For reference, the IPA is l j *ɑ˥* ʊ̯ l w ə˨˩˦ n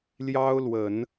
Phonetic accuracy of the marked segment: correct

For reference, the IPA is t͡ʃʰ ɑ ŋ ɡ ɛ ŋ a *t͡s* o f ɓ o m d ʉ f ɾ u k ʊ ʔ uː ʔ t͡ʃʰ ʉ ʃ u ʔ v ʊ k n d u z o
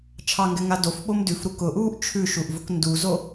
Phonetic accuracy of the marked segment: incorrect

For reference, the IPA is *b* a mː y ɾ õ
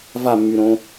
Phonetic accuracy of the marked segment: incorrect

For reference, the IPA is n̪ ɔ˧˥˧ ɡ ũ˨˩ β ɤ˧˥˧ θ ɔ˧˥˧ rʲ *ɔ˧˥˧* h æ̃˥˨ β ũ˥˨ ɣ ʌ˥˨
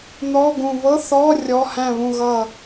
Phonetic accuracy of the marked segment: correct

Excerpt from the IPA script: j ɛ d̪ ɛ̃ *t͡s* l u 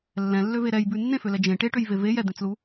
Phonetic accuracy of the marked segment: correct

